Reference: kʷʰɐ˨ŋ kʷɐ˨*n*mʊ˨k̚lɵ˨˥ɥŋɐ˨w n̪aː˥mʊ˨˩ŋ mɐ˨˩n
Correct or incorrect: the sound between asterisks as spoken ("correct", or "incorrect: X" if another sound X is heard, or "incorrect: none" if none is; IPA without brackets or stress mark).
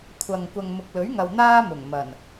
incorrect: ŋ